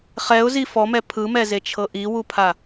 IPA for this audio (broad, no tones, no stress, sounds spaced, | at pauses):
χ ɛ ʊ̯ z i f ɔ m ɛ pʰ ɯ m ɛ z e t͡ʃʰ ɤ ʔ i w u pʰ a